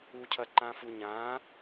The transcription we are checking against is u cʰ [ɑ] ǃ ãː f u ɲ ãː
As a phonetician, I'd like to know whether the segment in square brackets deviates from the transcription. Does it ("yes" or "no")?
yes